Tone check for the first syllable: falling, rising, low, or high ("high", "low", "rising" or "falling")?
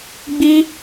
high